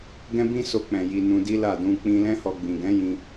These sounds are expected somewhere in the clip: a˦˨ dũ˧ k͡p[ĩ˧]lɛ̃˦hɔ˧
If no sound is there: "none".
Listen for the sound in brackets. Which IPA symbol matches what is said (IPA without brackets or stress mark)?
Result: ĩ˧